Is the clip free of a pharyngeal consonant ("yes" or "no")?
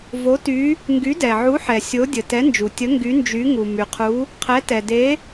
no